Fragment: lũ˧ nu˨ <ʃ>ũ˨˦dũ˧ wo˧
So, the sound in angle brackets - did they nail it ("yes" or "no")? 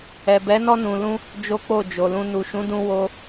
yes